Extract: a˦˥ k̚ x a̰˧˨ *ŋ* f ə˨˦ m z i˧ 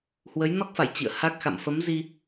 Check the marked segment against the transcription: incorrect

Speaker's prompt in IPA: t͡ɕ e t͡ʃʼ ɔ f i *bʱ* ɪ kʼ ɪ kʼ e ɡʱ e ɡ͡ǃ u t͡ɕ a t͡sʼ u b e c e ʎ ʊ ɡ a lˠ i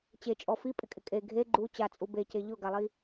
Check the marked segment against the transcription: incorrect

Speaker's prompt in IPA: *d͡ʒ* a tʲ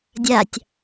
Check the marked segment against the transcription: incorrect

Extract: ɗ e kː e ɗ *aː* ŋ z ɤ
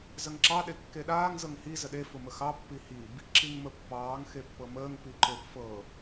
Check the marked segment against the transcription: correct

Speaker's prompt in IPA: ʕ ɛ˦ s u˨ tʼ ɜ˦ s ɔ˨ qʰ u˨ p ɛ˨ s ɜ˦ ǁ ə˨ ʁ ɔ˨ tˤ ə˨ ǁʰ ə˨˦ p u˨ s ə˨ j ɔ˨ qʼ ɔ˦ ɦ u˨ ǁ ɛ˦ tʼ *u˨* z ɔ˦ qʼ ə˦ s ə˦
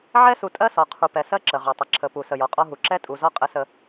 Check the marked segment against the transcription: correct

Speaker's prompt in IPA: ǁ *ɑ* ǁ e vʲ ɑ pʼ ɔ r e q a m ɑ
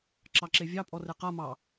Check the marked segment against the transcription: correct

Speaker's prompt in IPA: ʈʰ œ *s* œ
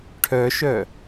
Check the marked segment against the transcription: incorrect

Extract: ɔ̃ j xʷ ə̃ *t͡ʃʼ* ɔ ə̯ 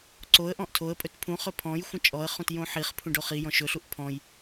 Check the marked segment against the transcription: correct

